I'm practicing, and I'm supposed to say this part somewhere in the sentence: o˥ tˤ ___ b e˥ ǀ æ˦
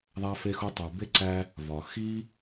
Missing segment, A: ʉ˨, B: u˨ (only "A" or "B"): B